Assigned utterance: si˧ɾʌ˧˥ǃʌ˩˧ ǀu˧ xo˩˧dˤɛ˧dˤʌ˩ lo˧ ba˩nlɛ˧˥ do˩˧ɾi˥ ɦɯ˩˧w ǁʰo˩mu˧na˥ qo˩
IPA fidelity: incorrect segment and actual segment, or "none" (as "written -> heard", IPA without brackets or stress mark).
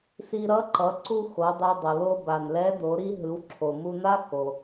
q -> k